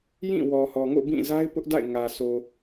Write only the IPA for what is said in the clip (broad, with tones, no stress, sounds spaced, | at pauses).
j ĩ˦˨ w ɔ˨ h ɔ˨ ŋ o̰˦˨ b ĩ˦˨ z a˦ ɪ̯ p ʊ˦ ʔ d a̰˦˨ ɪ̯ ŋ ä˨ sʰ o˨